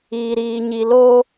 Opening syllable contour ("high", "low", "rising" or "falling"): low